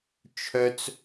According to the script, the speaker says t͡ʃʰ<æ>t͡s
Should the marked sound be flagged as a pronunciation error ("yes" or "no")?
yes